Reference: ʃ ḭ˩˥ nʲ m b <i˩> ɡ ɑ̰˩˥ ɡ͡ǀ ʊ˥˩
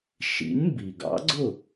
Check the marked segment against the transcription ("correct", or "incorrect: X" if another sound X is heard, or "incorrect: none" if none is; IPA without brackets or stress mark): correct